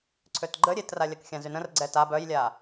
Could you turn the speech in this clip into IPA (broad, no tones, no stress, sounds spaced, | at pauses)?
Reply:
ǀʰ ø t ɡ͡ǃ ə ɾʲ e t r a lʲ a k xʲ ã z y n ə̃ r ɡ͡ǀ ɛ t a b œ j lʲ a